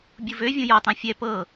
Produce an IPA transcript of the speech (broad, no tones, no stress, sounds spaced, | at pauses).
bʲ u v ø vʲ õ j ɔ tˤ ã fʲ ɛ p ɤ